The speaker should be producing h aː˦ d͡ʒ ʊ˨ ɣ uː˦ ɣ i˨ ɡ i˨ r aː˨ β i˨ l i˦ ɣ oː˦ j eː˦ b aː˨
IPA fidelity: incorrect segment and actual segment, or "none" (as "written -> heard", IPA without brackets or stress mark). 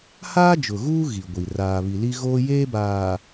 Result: ɡ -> ɡʷ